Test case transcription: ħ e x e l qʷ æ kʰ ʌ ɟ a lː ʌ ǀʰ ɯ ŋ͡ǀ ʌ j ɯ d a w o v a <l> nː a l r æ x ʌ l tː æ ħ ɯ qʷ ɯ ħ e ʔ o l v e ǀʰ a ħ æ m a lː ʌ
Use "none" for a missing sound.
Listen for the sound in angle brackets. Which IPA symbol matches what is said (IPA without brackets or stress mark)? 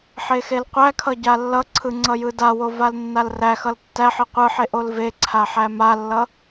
l